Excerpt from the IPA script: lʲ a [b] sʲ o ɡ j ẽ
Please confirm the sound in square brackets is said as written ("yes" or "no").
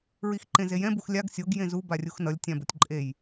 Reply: no